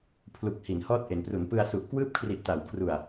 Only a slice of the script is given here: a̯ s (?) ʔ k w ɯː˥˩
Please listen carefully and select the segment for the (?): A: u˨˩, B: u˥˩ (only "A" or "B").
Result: A